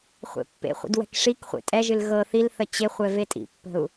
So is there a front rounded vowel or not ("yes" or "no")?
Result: no